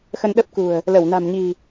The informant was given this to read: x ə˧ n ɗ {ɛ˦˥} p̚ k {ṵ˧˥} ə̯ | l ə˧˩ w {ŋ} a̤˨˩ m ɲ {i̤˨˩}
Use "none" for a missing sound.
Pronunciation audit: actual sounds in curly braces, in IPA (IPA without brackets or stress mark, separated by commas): ə˦˥, ṳ˨˩, n, i̤˨˩